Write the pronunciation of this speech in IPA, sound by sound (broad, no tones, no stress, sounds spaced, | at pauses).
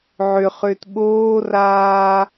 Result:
ʕ ʏ χ ʏː t ɓ oː r aː